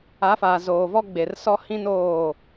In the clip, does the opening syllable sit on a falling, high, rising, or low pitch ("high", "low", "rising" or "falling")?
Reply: rising